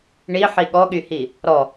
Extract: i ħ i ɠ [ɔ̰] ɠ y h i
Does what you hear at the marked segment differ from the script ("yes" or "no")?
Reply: yes